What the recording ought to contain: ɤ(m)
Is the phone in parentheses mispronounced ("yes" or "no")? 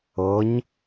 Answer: yes